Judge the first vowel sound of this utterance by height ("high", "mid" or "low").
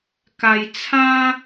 low